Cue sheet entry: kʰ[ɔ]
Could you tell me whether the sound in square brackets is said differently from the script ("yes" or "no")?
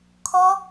no